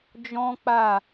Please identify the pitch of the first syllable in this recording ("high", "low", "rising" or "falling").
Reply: high